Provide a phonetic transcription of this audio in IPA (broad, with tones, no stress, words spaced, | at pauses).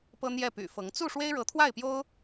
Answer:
pɤ˥n̪jɛ˥˩py̰˨˩fɤ˧˥ŋ t͡su˥˩ ʂwe˥ɪ̯ɻɤ˧˥t̪ʰwa˥˩ɪ̯pjo˥ʊ̯